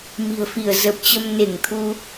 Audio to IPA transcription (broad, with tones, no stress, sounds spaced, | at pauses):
m i̤˨˩ ə̯ f i˧˩ ə̯ z ə˨˩ p̚ t͡ɕ ə˧ m n e˧˩ ŋ t̪ʰ u˧